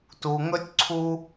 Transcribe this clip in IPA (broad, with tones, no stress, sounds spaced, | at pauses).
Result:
t u˧ ŋ ɵ˥ tʲ ǀʰ u˥